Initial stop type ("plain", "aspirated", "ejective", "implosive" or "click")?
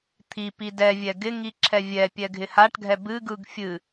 aspirated